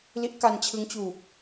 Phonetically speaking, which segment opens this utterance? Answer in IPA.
l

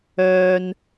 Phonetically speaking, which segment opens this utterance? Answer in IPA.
œː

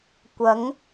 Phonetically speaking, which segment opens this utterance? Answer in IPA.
kʷ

